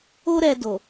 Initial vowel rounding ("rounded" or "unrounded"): rounded